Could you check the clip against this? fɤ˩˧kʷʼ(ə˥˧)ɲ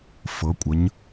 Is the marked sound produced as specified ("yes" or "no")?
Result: no